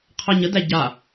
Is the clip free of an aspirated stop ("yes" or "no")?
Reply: no